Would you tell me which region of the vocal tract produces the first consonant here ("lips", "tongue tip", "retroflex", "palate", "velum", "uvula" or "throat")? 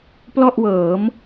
lips